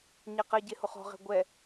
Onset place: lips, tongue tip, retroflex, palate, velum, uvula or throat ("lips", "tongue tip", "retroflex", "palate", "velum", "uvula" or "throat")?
palate